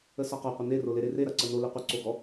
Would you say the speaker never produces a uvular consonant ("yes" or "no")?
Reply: no